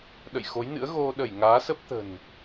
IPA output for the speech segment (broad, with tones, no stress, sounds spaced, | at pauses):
ɗ ə̰˧˨ j x o˨˦ j n ɨ̰˧˥ ə̯ ɣ o˧ ɗ ə˧˩ j ŋ aː˨˦ s ə˦˥ p̚ t̪ ə̤˨˩ n